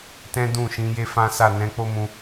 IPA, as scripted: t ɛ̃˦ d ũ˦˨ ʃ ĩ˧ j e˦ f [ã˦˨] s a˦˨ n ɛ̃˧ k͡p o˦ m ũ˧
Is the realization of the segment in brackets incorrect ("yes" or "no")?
yes